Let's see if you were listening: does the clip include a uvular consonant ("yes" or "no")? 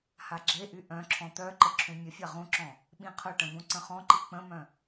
yes